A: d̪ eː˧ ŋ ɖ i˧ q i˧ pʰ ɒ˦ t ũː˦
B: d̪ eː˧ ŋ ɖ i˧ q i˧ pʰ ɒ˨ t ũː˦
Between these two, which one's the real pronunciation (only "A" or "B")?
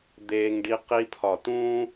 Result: B